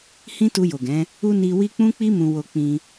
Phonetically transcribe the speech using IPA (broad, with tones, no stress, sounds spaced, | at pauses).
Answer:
h ĩ˦ t u˧ j o˨ ɡ ɛ̃˨˦ | u˦ n i˧ w i˦ k͡p ũ˦ k͡p i˦ m ũ˧ w o˧ k͡p ĩ˧